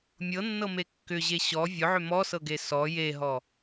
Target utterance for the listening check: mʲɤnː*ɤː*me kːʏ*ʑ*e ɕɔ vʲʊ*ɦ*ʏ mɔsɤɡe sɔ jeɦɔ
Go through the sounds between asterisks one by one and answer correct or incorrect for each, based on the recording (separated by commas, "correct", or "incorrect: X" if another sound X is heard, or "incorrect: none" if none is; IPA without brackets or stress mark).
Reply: incorrect: ɤ, correct, incorrect: ʕ